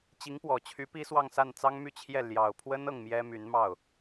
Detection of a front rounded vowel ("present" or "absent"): present